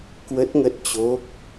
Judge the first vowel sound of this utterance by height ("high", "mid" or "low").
mid